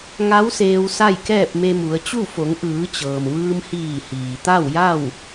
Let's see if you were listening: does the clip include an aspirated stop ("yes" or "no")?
no